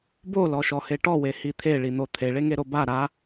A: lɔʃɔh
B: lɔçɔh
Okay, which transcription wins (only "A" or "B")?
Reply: A